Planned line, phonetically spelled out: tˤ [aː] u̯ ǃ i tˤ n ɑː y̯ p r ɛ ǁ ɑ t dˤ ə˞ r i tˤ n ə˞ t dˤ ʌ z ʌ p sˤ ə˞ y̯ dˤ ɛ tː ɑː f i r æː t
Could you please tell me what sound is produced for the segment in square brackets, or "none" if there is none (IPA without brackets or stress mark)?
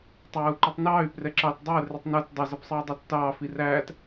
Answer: æː